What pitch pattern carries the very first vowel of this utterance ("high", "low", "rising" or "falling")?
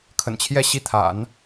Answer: low